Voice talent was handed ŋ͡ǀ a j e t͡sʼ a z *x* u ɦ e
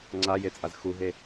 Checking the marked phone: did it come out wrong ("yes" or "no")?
no